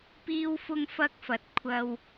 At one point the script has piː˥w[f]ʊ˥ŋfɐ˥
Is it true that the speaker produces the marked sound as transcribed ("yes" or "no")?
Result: yes